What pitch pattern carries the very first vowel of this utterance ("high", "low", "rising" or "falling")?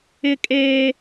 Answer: high